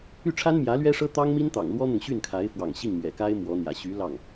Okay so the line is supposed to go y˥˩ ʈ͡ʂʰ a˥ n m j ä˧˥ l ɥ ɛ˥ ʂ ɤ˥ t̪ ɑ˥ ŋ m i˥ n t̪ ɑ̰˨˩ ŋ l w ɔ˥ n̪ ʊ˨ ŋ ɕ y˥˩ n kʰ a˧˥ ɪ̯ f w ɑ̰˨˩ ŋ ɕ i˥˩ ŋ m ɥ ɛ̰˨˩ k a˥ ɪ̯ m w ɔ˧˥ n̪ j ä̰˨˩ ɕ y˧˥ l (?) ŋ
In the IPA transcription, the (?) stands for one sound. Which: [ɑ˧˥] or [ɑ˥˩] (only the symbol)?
ɑ˥˩